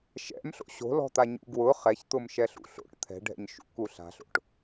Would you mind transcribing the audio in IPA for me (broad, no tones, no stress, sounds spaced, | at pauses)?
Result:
ʃ ɛ̰ m ɬ o̰ ɕ o̤ l ɔ̤ t̪ a ɲ ṵ ɡ w ʊ χ ɛ ç t̪ ʊ m ʃ ɛ ɬ ṵ ɬ o̰ ʈ t̪ʰ ɛ̤ ɖʱ ɛ̰ ɲ ʃ ṵ k u ɬ a̤ ɬ o̰ ʈ